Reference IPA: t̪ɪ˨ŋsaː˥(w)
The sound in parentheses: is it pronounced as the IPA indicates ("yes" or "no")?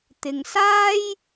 no